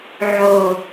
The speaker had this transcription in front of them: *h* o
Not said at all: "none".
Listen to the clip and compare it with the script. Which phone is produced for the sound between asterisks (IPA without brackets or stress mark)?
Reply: ʕ